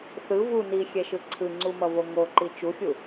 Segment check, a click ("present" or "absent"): present